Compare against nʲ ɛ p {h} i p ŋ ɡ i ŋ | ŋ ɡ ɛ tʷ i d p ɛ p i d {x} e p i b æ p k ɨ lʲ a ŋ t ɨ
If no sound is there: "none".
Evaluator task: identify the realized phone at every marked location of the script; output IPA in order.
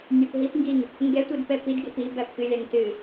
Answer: ɦ, ɡ

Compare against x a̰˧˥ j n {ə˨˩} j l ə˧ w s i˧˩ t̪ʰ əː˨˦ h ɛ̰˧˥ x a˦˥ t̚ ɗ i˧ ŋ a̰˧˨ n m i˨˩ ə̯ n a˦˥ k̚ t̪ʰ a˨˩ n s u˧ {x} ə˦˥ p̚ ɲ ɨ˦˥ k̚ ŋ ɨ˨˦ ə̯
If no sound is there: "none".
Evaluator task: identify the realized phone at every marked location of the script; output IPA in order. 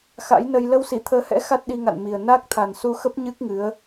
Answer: ə˧, x

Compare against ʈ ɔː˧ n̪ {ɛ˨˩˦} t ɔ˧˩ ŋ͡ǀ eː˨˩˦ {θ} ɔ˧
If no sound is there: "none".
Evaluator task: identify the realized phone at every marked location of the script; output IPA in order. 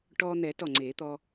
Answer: ɛ˨˩˦, t̪

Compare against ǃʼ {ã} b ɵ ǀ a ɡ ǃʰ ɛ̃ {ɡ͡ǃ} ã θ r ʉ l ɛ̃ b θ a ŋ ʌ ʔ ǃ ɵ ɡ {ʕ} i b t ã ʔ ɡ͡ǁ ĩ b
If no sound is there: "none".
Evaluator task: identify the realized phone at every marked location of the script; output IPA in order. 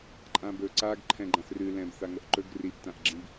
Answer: ã, ɡ͡ǃ, r

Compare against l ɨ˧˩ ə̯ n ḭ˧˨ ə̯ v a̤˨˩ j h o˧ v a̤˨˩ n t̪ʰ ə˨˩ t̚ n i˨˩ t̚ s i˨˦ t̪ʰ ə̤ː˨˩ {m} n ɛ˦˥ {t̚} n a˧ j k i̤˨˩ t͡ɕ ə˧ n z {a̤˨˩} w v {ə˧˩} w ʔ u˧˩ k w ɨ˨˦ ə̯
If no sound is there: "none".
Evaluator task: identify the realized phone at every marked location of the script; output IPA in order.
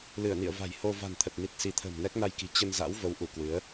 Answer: m, k̚, a̰˧˥, ə˨˦

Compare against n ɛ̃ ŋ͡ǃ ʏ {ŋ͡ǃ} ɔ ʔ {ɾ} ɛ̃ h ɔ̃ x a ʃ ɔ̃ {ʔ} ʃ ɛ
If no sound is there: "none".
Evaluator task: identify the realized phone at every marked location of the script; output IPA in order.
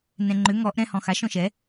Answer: ŋ, ɾ, none

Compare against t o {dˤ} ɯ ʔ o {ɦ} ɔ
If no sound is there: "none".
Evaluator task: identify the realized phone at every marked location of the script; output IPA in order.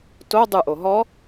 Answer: dˤ, ɦ

